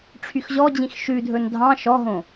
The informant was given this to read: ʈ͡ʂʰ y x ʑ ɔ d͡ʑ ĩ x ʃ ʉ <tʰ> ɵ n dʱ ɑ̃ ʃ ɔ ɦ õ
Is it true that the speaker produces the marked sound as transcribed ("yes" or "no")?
no